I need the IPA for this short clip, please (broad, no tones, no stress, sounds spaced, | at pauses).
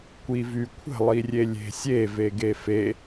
kʷ i v y kʷʰ ə̤ lˠ i rʲ e lʲ e̤ sʲ e v e ɡ e f e